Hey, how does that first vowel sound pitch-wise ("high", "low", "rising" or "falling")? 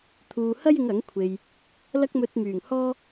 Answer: low